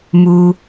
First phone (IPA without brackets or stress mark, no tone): m